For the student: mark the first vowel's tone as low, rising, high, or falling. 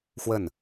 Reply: falling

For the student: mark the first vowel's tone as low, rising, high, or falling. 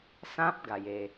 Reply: high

